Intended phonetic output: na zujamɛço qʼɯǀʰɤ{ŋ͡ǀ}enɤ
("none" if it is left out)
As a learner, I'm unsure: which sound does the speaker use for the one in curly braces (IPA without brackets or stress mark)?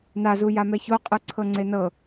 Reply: ŋ͡ǀ